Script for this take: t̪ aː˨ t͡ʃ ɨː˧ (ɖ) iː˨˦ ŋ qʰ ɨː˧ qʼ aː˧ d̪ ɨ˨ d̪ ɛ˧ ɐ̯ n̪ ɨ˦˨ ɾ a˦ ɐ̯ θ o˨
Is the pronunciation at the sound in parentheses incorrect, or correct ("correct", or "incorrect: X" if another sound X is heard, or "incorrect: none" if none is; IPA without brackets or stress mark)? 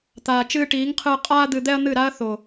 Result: incorrect: ʈ